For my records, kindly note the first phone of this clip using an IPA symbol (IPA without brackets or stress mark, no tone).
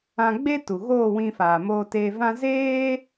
ã